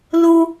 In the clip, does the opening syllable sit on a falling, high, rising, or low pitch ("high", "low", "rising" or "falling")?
high